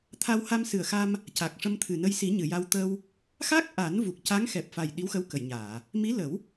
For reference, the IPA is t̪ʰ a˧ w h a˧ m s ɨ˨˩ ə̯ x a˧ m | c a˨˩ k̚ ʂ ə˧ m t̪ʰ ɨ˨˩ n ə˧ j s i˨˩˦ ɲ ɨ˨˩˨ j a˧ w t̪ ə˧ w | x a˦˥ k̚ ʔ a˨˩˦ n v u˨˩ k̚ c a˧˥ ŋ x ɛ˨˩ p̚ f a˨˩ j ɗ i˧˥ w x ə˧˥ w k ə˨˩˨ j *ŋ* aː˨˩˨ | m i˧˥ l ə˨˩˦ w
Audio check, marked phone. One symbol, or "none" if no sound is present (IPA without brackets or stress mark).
ɲ